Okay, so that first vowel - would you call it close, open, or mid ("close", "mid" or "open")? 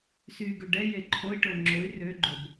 close